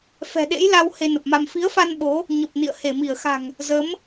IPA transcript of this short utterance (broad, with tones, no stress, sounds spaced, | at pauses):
f ɛ̤˨˩ ɗ ḛ˧˥ j l a˧ w h e˧ n ə˨˩ p̚ m a˧ m f i˨˦ ə̯ f a˧ n ɓ o˨˦ | ɲ ə˨˩ p̚ n ḭ˧˨ ə̯ h e˧˩ m i˧˩ ə̯ x a̤˨˩ ŋ | z ə˨˦ m